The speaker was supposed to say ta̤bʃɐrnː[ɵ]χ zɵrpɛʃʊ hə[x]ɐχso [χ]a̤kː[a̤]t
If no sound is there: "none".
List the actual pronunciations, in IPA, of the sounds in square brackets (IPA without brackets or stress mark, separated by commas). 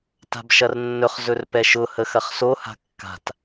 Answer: ɵ, x, h, a̤